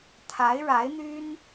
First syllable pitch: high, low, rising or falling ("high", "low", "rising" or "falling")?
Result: rising